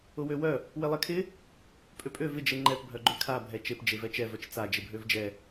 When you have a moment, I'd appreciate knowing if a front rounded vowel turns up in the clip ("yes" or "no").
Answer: yes